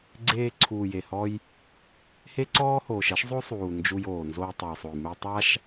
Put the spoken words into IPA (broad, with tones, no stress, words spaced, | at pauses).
ɡ͡ǀeː˧ǀʰuː˨je˨hɔ˧j | he˦ǀɔː˦hoː˨ʃ ɐ˦ʃzˤo˦sˤuː˨ nd͡ʒu˧joː˨nzo˧j tˤo˨jsˤo˨jmɘ˧j tˤa˦ʃ